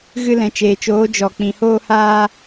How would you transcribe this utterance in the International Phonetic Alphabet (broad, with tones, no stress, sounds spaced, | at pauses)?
ɣ ɨ˧ l ɛ̃˨ t͡ʃ eː˨ t͡ʃ oː˨˦ d͡ʒ ɔ˨ k͡p ĩ˨ h oː˧ h aː˧